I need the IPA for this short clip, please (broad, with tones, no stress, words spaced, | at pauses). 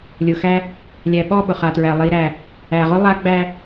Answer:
lʲʊ˨xæ˦ | lʲæ˨ɓɔ˦˨ ɓʊ˨χa˨tɹæ˨ lˠi˨ɾæ˨ | æ˨ʁʊ˦ lˠa˦ɡ͡bæ˦